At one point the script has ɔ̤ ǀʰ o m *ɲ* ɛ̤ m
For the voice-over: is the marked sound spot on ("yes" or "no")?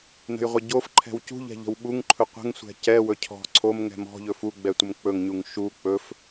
no